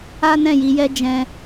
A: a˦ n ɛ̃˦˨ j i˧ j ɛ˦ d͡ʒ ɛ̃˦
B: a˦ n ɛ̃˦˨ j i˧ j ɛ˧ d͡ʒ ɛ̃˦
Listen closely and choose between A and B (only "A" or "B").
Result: A